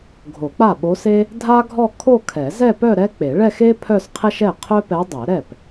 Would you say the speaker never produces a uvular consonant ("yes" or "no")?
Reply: no